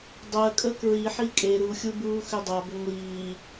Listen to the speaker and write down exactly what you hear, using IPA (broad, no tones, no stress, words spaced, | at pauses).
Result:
dˤɜ kʼəkɹi ħikʼe ɾu xʲubuːxʏdˤa bʏŋʷiː